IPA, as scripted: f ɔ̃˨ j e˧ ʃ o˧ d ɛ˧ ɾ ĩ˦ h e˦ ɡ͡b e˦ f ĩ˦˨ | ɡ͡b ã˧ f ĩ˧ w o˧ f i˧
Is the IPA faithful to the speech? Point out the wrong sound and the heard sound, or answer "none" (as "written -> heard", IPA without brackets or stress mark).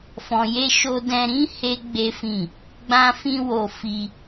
ɛ˧ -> ɛ̃˧